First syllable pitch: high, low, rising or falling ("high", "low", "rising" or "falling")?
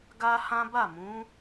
high